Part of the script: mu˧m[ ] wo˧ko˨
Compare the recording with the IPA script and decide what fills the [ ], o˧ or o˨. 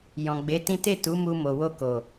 o˨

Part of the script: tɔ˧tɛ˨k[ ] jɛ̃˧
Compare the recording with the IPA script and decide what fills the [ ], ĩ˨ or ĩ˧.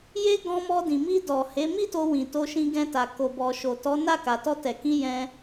ĩ˧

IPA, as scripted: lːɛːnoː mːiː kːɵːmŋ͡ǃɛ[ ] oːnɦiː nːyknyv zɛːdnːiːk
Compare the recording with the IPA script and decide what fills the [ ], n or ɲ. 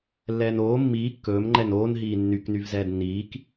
n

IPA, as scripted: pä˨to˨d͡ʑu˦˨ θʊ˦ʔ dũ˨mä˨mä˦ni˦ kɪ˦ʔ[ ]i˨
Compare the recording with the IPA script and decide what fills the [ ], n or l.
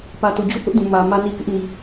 n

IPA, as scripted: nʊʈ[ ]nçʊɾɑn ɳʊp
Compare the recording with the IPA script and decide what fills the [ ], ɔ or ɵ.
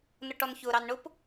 ɔ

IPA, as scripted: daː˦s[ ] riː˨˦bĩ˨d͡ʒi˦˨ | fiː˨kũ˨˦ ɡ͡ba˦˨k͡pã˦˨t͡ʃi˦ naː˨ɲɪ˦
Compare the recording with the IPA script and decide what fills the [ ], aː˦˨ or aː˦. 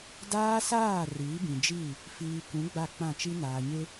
aː˦˨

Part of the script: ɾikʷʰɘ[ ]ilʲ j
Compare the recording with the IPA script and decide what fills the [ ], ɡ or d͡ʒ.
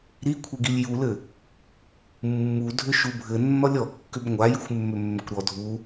ɡ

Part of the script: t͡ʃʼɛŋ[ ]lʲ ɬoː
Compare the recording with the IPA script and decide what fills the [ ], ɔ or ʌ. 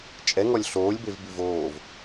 ɔ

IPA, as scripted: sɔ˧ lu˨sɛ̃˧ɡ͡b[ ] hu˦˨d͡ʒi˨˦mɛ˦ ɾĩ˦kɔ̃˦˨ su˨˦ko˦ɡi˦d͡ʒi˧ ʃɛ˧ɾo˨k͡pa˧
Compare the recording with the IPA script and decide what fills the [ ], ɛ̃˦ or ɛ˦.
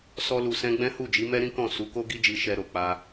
ɛ̃˦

